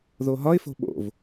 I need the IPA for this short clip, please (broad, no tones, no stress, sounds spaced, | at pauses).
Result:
ð o ɦ ɒ ɪ̯ f o̤ ɓ o̰ v